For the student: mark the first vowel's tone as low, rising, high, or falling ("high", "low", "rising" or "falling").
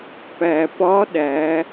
low